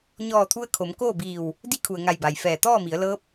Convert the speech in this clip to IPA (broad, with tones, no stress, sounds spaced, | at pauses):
ɲ ɔː˧˩ t̪ʰ u˧ ə̯ kʰ o˩˧ m k oː˥˨ b iː˧˩ w | d i˧˥ kʰ u˩ ə̯ ŋ a˧˩ j b a˩ j f ɛː˧˩ t̪ ɔː˥˨ m i˩˧ ə̯ l ɤː˧˥ p̚